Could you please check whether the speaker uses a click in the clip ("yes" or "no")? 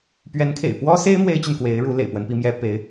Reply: no